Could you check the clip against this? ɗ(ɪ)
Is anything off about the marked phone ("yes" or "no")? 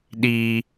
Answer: yes